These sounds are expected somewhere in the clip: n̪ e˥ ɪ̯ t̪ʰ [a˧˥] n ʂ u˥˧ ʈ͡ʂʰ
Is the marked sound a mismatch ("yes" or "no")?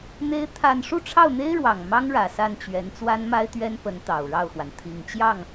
yes